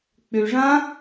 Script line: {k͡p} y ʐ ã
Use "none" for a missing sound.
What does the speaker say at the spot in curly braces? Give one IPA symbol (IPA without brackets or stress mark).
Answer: k͡p